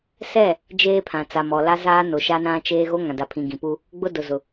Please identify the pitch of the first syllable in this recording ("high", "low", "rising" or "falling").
falling